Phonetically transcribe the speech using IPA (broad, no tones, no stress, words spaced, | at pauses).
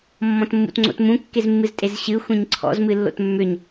mːɔ̃tmːṵtŋ͡ǀo̰tmũ kːezmːɨztʼezɕɨ xʷẽɲǀʰɔ̰z mɨlːo̰tmːʏɲ